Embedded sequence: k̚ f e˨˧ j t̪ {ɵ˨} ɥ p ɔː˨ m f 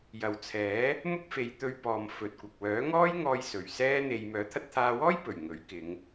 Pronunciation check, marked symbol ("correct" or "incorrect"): incorrect